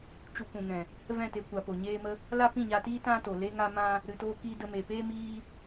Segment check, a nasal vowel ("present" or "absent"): present